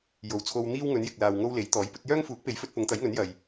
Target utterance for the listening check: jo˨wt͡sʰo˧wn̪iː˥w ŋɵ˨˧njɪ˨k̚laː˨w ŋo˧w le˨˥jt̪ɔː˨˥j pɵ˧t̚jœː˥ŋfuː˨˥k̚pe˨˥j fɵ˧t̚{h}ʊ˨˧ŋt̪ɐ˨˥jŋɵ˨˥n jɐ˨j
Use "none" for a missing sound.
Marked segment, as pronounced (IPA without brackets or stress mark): p